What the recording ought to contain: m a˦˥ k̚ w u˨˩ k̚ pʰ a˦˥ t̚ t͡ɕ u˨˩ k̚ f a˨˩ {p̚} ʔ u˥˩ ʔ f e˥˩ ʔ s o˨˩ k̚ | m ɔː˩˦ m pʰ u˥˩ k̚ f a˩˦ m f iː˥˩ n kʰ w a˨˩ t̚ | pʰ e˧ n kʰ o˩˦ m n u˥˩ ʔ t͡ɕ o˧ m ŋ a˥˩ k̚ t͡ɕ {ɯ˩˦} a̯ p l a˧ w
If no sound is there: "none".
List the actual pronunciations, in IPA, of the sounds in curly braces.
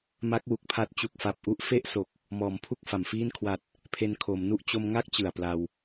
p̚, ɯ˨˩

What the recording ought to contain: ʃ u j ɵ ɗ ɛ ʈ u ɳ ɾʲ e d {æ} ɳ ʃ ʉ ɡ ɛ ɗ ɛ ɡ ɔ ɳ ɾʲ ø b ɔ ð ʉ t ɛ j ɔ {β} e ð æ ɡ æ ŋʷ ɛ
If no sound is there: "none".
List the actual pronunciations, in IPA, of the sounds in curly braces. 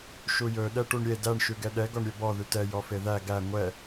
æ, f

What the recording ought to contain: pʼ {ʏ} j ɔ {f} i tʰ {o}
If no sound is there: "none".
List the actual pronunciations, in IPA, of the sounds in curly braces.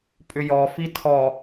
ʏ, f, ɔ

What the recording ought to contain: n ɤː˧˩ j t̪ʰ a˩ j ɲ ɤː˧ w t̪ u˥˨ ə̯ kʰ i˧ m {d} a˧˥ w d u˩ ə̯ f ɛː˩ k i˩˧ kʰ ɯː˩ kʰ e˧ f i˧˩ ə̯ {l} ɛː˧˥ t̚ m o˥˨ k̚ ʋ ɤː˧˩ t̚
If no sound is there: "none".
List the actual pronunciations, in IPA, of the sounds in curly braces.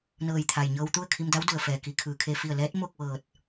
d, l

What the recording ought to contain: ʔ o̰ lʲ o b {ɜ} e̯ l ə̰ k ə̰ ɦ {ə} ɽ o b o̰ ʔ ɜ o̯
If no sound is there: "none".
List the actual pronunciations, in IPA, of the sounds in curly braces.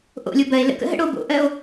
ɜ, ə̰

